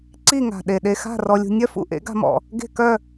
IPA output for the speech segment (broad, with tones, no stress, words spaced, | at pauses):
ǀi˥˨ŋa̤˨˩ ɗe˨˩ɗe˧xa̤˥˨ rɔ˧lʲṳ˧ nʲœ˥˨fṵ˥˨ ʔḛ˩˥ɡa̤˧mɔ̰˨˩ | ɡe̤˥˨kœ˥˨